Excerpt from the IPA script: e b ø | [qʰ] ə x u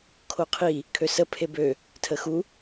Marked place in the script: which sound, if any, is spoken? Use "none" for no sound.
tʰ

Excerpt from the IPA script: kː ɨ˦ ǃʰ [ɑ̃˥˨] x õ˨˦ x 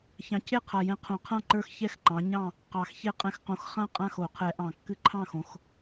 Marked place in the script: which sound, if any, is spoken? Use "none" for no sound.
ɑ̃˥˨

